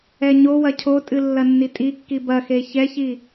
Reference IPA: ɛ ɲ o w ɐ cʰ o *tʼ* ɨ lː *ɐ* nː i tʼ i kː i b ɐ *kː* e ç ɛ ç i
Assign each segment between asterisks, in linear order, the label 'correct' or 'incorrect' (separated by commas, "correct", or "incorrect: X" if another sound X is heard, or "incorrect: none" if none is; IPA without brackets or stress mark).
correct, correct, incorrect: x